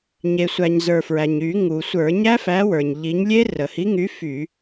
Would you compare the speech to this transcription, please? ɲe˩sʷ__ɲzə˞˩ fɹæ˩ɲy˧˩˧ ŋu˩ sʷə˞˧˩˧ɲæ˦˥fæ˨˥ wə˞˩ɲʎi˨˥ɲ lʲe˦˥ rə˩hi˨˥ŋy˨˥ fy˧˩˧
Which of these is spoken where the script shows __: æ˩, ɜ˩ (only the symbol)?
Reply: æ˩